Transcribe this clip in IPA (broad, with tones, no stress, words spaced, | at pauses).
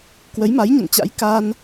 kwə˨˦jma˨˦jɲə̰˧˨nt͡ɕa̰˧˥j ka˧n